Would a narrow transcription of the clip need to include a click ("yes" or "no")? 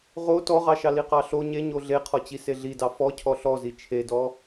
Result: no